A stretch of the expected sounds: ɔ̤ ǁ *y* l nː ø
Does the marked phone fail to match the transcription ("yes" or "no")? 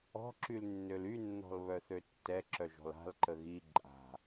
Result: no